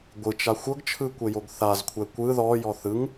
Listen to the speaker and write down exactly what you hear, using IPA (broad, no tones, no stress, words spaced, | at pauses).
ɡʷɯt͡ʃa xʷɤɡt͡ʃʰɯkʷejoɡ θazkʷʰɛ kʷɯ ðɔjɔ θɯŋ